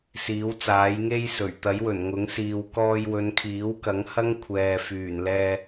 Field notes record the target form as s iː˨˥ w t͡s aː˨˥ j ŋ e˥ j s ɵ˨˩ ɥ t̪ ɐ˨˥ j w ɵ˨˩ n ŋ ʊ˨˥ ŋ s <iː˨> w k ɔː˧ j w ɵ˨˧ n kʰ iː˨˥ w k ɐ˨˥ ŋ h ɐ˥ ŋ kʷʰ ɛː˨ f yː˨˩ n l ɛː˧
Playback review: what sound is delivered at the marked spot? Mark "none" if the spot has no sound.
iː˨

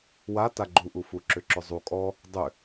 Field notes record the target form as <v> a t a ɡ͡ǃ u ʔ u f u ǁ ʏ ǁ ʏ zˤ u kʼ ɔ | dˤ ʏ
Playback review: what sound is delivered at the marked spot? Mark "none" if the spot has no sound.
w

